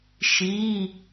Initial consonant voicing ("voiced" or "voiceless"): voiceless